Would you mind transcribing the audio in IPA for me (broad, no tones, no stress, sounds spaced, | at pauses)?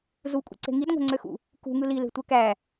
z u kʷʼ ḭ ǀ e̤ ŋ i d ŋʷ æ̤ ŋ͡ǀ ø x ṵ | k ṳ ŋ ɯ l i l e̤ tʷ e k æ